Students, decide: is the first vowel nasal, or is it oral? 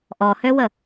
oral